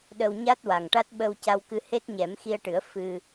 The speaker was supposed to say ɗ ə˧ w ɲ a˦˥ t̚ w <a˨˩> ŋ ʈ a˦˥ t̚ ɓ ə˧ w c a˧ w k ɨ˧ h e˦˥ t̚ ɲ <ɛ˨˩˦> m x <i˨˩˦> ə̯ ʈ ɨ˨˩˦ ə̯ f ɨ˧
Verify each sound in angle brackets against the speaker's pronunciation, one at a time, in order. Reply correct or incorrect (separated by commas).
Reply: correct, correct, incorrect